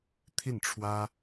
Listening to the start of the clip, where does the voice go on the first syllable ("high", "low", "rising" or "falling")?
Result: falling